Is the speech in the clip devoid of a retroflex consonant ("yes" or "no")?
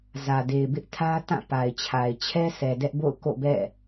yes